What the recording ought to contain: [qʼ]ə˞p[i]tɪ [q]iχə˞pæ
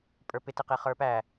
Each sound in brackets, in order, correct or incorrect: incorrect, incorrect, correct

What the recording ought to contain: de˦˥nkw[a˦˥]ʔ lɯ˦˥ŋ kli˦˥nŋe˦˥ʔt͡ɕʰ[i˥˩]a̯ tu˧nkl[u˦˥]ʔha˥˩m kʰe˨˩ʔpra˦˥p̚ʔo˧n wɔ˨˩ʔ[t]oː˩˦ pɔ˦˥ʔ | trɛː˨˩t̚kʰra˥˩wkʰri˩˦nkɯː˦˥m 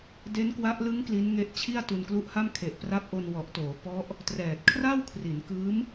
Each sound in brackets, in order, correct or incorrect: correct, correct, correct, correct

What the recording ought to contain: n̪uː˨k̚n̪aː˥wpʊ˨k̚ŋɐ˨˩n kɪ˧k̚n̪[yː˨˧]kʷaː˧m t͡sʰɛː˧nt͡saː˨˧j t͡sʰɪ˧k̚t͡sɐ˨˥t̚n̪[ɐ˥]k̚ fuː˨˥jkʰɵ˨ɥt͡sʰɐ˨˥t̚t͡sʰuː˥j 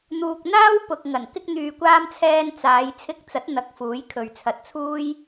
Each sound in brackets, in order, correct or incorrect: incorrect, incorrect

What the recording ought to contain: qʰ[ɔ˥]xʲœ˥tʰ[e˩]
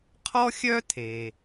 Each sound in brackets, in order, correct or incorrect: correct, correct

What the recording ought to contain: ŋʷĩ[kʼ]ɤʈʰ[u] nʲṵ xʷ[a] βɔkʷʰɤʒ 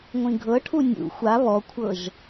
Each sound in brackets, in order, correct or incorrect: incorrect, correct, correct

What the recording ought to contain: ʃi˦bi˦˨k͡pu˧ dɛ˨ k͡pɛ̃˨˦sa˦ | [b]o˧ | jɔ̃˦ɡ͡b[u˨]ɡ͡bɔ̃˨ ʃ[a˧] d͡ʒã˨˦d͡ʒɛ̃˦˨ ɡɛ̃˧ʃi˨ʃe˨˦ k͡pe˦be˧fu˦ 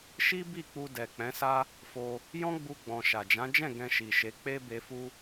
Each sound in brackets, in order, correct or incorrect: incorrect, incorrect, incorrect

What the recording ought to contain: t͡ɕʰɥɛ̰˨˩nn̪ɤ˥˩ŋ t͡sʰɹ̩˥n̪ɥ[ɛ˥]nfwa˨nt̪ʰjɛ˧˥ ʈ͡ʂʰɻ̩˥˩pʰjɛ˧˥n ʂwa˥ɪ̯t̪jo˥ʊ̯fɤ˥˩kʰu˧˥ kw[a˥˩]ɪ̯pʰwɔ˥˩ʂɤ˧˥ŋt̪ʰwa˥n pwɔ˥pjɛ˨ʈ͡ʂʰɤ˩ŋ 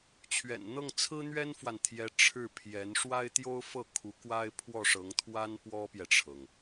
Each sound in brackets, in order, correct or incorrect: correct, incorrect

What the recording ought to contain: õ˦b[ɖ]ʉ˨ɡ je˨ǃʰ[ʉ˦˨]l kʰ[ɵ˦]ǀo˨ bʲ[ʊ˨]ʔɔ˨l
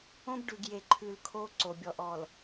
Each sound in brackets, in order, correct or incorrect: correct, incorrect, incorrect, incorrect

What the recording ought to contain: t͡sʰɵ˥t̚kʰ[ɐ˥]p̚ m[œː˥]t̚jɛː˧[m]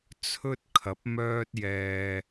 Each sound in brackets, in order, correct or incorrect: incorrect, correct, incorrect

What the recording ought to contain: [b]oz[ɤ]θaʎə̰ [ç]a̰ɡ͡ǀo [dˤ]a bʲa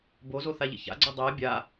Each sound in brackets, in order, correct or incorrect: correct, incorrect, correct, correct

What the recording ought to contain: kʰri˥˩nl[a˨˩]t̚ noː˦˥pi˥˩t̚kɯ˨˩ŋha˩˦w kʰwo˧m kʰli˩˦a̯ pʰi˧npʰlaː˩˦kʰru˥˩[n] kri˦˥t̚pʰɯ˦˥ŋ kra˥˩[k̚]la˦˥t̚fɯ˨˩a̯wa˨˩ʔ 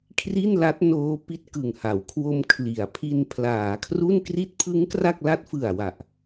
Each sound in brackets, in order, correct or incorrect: incorrect, correct, correct

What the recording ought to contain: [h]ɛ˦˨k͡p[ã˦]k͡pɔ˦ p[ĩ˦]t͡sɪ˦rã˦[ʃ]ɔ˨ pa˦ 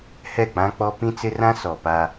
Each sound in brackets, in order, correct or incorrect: correct, correct, correct, incorrect

